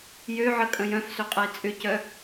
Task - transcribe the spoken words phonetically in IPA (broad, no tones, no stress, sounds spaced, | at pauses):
j ø ʕ ə kʼ ə̃ j œ̃ f s ø qʼ ə i̯ t͡sʼ ʏ c œ